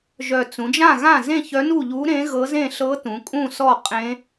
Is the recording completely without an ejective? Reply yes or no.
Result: no